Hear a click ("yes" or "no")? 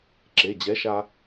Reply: yes